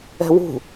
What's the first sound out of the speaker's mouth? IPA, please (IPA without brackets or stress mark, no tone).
ɛ̤